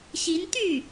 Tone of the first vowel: rising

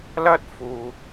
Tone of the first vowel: high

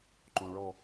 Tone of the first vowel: low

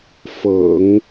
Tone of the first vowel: low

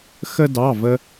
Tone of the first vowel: high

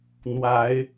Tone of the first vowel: rising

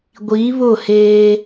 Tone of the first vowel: rising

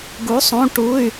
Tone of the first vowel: rising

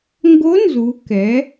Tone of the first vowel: rising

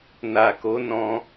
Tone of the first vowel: low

